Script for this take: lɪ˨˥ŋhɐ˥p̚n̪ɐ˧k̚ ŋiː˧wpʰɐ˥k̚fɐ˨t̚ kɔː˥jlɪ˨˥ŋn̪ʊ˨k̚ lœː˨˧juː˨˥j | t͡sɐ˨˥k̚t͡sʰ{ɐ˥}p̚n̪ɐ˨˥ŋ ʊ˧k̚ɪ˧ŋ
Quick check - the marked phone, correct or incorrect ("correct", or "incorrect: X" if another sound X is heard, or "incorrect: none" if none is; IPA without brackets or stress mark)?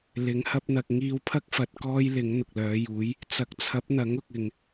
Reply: incorrect: ɐ˨˥